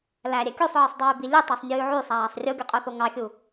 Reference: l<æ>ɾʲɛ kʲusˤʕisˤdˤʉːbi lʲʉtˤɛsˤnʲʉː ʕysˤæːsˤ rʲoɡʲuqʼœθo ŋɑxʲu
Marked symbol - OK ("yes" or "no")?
yes